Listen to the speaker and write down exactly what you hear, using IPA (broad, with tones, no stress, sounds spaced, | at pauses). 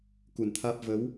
k u˨˩ n t̪ʰ aː˦˥ p̚ v ə˨˦ w